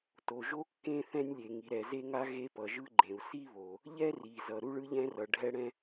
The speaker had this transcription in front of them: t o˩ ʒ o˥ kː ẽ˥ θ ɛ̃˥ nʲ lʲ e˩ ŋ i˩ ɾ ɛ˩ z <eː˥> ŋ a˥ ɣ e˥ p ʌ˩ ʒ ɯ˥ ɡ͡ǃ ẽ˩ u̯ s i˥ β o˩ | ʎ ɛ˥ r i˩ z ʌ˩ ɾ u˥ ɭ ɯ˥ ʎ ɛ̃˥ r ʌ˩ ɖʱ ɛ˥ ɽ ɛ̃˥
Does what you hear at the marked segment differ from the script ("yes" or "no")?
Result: yes